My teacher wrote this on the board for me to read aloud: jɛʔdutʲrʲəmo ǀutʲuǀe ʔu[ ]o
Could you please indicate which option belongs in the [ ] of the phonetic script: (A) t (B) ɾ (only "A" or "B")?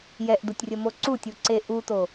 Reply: A